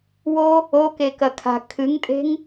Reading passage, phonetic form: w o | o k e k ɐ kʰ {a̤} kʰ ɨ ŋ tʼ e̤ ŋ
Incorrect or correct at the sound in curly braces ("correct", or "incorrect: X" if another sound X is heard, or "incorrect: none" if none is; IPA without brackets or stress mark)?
correct